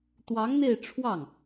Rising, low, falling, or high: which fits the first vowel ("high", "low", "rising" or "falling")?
rising